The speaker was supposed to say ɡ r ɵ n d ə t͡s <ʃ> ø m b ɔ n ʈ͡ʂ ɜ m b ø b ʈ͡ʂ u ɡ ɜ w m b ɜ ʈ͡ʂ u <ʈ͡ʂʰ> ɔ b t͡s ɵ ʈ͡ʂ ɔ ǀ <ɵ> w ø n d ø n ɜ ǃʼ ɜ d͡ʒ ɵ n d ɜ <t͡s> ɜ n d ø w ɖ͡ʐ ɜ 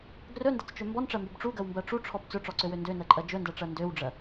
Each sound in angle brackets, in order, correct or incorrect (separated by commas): incorrect, correct, incorrect, incorrect